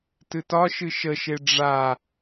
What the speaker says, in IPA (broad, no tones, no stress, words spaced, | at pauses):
tɨtɒʃɨ ʃəʃe ɖ͡ʐa